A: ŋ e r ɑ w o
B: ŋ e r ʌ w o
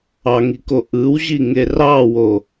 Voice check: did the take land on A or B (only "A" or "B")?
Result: A